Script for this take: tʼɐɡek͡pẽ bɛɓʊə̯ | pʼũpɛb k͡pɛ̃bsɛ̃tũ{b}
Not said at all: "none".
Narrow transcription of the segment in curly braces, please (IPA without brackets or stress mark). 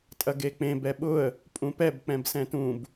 b